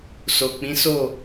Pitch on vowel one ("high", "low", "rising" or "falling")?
low